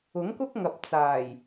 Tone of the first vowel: rising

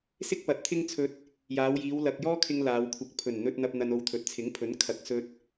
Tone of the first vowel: high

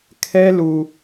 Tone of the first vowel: high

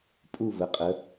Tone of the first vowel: falling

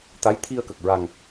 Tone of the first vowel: rising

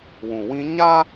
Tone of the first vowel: low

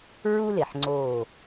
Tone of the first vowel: high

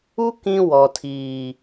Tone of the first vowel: high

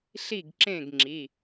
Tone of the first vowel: falling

